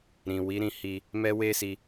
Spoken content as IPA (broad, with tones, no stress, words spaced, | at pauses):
ɾĩ˨ wi˨˦ɾĩ˧hi˧ | mɛ˦we˦si˧